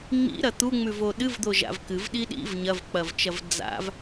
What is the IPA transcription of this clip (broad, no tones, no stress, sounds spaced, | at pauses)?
ŋ͡m ḭ ɾ ɐ t̪ u ŋ͡m ʉ v o ɗ ɨ v d̪ o ʒ a̰ v k ɨ v ɗ i ɗ ḭ v ɲ ɐ v k͡p ɐ v t͡ʃ ɐ v d͡z a̰ v